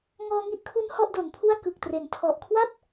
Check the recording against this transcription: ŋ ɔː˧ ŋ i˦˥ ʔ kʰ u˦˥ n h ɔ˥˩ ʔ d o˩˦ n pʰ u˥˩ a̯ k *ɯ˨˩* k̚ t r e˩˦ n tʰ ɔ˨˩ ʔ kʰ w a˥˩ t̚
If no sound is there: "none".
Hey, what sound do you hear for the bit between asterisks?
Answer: ɯ˨˩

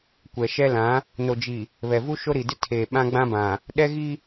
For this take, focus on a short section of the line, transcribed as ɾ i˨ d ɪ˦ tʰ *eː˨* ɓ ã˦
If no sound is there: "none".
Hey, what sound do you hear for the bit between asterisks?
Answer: eː˨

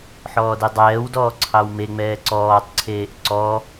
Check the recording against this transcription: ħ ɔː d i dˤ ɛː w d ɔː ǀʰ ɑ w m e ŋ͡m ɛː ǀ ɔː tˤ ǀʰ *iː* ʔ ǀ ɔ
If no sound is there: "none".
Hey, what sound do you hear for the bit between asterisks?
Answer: eː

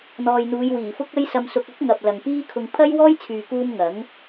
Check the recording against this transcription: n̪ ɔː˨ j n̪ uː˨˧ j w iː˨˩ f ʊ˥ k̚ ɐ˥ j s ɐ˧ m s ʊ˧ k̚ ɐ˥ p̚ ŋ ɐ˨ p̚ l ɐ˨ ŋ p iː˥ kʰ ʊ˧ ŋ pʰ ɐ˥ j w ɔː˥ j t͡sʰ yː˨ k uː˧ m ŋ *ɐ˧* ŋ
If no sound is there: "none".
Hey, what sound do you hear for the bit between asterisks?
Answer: ɐ˨˥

